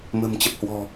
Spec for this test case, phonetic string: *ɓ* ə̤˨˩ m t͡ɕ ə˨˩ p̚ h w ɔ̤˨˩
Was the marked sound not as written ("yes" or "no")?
yes